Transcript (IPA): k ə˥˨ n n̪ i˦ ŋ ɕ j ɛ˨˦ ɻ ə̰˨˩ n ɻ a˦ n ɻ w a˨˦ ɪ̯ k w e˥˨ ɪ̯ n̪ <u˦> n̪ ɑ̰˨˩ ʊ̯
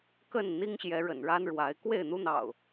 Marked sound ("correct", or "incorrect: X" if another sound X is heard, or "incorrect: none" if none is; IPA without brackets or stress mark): correct